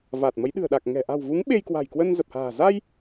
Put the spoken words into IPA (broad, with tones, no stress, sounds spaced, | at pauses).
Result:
v aː˨˩ t̚ m ə˨˦ j ɗ ɨ̤˨˩ ə̯ ɗ a˨˩ k̚ ŋ ɛ̤˨˩ ʔ a̤˨˩ w v u˨˦ ŋ ɓ e˧ j k w a̤˨˩ j k w ə˧ n z ə˨˩ p̚ h a̤ː˨˩ z a˧ j